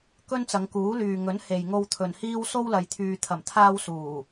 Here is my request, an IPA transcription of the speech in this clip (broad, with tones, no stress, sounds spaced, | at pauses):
k ɵ˥ n t͡s ɐ˨˧ ŋ k uː˨˥ l yː˨ ŋ ɵ˨˥ n h e˨ j ŋ o˧ w t̪ʰ ɵ˨ n h iː˥ w s o˥ w l ɐ˨ j t̪ʰ yː˨ t̪ʰ ɐ˨˩ m t̪ʰ aː˧ w s uː˨˩